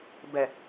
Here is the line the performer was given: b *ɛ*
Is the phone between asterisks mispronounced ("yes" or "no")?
no